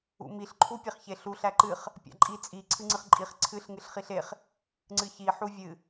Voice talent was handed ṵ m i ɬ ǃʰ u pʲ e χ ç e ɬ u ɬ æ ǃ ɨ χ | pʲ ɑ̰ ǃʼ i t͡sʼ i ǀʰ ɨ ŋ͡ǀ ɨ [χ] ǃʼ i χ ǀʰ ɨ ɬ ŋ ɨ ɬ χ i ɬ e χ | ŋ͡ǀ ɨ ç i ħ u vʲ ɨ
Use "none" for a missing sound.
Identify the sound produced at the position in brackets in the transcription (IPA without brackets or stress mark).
χ